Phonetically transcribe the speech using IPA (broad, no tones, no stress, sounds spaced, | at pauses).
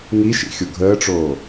ŋ i ʃ ḭ xʲ o ɡʱ əː ʈ͡ʂ oː